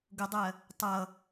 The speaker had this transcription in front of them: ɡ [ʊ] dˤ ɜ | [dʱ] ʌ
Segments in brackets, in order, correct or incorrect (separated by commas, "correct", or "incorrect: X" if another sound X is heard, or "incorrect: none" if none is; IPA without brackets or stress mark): correct, incorrect: tˤ